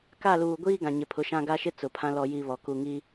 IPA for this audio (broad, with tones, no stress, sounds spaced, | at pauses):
k a˦˨ l uː˨ ɡʷ iː˦ ɡ ã˨ ɲ ɪ˨˦ pʰ ʊ˨˦ ʃ ã˦ ɡ a˦ ʃ ɪ˦ t͡s ʊ˨ pʰ ã˦ l ɔ˨ j i˨ β ɔ˨ k u˨ ŋ i˦